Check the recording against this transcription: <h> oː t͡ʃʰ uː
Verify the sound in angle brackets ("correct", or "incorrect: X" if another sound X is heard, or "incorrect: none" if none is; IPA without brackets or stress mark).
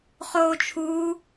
incorrect: χ